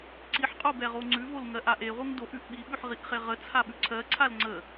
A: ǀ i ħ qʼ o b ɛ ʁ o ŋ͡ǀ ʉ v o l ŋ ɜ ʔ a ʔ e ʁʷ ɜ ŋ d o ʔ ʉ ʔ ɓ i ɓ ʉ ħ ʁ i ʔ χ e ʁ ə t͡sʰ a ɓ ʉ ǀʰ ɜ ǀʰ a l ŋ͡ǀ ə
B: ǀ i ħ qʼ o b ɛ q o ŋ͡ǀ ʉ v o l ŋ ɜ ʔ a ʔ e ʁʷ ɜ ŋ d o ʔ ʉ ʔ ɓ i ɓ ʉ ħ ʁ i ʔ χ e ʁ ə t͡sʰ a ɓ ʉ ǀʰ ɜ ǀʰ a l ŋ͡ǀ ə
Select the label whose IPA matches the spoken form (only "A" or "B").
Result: A